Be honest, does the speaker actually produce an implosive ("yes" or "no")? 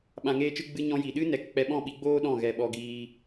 yes